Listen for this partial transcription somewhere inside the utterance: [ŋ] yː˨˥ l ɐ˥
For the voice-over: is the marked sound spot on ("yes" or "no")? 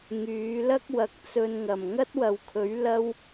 yes